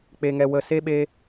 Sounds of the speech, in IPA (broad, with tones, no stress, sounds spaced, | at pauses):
k͡p e˨ ŋ ɛ˨ w ə˨ s e˦ ɓ e˧